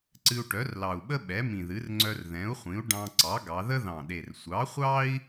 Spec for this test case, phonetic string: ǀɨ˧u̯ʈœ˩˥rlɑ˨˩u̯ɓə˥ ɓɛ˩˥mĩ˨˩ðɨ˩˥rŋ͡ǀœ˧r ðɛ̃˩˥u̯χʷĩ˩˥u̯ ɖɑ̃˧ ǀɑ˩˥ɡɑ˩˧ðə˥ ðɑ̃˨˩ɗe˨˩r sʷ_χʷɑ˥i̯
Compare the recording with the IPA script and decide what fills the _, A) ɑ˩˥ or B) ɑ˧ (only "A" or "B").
A